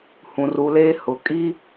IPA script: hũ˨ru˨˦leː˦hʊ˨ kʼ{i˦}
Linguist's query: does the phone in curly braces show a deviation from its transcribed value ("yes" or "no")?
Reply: no